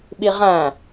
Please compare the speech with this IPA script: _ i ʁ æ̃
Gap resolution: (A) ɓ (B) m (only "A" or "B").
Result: A